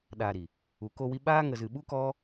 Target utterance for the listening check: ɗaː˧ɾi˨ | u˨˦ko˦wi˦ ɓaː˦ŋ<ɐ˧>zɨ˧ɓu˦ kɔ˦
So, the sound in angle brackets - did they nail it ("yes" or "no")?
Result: no